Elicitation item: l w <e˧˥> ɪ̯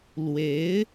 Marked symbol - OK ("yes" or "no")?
yes